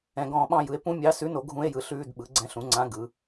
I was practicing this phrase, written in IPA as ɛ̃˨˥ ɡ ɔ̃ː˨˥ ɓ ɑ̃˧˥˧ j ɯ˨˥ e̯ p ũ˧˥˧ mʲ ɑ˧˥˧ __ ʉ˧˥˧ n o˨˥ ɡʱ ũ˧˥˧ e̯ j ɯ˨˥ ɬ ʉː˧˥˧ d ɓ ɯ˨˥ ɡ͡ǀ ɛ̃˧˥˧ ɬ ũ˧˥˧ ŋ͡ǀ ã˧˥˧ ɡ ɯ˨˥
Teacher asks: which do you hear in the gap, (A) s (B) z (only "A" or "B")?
A